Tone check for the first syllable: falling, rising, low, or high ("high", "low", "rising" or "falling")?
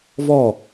falling